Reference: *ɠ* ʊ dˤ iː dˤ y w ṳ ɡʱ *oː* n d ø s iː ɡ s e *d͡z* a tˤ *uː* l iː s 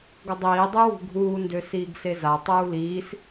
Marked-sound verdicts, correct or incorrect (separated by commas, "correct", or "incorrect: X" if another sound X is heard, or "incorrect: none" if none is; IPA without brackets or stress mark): incorrect: ɡ, incorrect: uː, incorrect: z, correct